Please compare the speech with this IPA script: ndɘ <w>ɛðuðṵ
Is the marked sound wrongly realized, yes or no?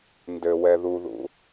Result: no